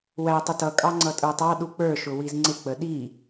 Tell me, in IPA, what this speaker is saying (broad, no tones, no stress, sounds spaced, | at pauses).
w æ tˤ ə t ʌ kʼ ɑ ŋ͡ǀ ʌ tʼ ə˞ tˤ ɑ ɗ u k͡p ə˞ ʃ ʊ w i z ŋ͡ǀ ɪ k͡p ə ɗ i